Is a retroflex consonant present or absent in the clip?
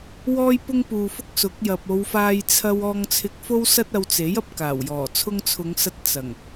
absent